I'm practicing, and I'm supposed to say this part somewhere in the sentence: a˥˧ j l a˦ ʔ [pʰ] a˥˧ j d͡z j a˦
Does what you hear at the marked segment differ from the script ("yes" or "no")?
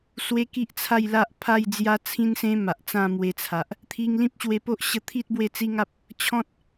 no